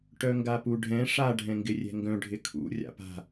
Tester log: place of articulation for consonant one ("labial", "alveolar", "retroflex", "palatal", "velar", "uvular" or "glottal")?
retroflex